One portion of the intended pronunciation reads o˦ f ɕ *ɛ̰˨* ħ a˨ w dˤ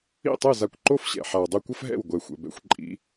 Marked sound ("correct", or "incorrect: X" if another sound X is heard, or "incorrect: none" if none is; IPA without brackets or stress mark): correct